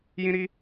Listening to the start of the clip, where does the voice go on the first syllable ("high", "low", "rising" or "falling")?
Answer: high